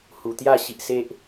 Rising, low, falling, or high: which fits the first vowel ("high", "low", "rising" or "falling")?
low